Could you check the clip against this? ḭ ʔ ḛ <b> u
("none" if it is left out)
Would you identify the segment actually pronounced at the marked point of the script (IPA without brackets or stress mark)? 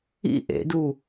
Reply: d